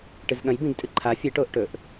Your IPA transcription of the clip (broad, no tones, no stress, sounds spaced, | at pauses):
ʈ ɨ z ɠ ɐ̃ j b ĩ ɡ tʼ ɨ ǃʰ a fʲ ɨ ʈ oː ʔ ʈ ɵ ʔ